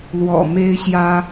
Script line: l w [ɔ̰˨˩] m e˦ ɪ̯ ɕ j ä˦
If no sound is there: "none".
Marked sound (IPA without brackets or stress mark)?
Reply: ɔ̰˨˩